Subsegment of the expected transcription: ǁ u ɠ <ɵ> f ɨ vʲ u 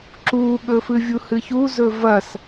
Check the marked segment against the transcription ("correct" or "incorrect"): correct